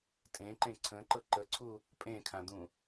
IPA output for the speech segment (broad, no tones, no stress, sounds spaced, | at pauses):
tʼ ẽ ǃ ẽ ǀʰ ə̃ ǃ ɤ ǃ ə ǀʰ u | pʼ ẽ kʰ ã d̪ ũ